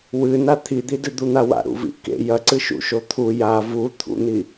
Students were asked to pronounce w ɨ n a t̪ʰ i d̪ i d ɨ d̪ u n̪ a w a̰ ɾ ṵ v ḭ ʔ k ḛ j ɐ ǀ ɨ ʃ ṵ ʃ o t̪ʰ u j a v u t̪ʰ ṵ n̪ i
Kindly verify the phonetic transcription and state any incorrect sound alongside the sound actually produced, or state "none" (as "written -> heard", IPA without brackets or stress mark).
none